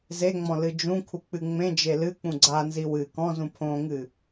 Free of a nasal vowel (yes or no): no